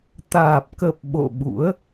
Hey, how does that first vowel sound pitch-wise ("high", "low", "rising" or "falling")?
low